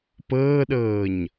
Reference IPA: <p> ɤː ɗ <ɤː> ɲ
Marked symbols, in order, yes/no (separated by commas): yes, yes